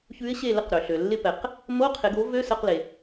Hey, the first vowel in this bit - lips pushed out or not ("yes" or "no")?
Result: yes